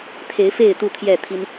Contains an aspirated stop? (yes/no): yes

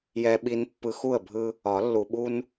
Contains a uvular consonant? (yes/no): no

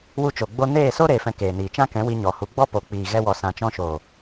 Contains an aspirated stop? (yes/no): no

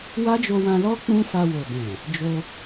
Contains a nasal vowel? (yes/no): yes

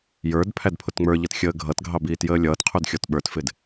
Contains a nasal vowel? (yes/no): no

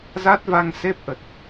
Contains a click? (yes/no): no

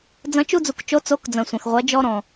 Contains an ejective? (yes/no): no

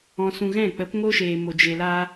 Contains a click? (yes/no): no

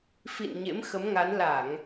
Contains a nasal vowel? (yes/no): no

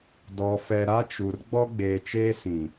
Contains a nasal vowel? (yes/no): yes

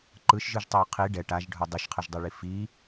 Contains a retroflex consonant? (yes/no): yes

